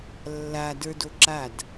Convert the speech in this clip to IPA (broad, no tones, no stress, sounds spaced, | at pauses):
lː a d ə˞ d o ǁ a d